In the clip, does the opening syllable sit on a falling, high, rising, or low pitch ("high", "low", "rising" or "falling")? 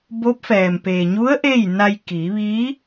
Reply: rising